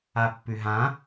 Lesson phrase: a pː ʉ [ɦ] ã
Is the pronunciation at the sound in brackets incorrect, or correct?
correct